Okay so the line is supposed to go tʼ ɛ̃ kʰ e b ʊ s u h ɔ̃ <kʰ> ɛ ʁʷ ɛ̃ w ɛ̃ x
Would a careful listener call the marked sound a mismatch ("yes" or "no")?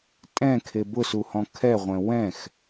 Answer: no